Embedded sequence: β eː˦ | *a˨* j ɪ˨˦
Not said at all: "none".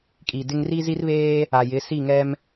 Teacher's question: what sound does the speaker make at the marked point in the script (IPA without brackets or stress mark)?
a˨